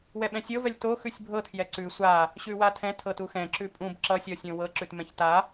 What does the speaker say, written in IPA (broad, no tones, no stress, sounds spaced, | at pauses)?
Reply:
w ɛ ɓ ɛ̃ sʲ ɤ v ɛ lʲ t o x ʉ sʲ bʱ ɤ tʰ j ɛ ǀ ʉ sʷ a | ɕ ʉ w a tʰ ɛ̃ tʰ ɤ t u x ɛ̃ ǁ ʉ pʼ ũ b ǁ ʌ sʲ ɔ sʲ õ w ɤ ǁ ʉ t m ɛ̃ ç t a